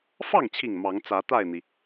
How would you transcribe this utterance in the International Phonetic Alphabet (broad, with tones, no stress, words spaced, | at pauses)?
fɑ˥˨ŋt͡ɕʰi˨˩ŋ mɑ˨˦ŋt͡sä˨˦t̪a˥˨ɪ̯n̪i˩